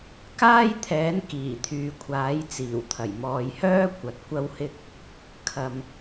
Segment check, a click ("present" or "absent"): absent